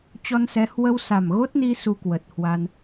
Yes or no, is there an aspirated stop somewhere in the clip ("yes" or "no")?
no